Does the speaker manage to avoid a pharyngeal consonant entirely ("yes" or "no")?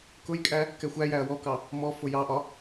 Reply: yes